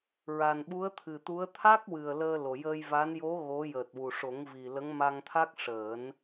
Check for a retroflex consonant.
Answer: present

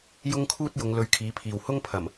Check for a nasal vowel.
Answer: absent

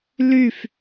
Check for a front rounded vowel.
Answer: present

